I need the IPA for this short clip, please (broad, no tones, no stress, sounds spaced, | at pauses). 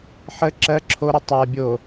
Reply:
ħ ə ǁ ɜ ǁʰ o ɾ ə tˤ a bʲ o